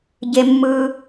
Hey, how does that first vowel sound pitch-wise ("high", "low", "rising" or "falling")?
high